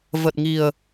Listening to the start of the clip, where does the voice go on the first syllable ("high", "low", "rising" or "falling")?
low